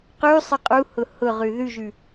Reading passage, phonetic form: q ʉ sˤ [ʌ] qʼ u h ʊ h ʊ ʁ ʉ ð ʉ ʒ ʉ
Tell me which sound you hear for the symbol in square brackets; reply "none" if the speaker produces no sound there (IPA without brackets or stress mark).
ʌ